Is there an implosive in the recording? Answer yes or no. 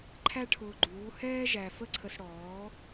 no